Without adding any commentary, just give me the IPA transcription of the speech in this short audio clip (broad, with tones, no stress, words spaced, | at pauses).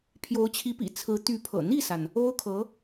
pʰjo˧˥ʊ̯t͡ɕʰi˧˥pḭ˨˩ t͡sʰɹ̩˧˥t̪y˧˥pʰɤ̰˨˩ n̪i˥˩sa˩n | o˥ʊ̯kʰɤ˧˥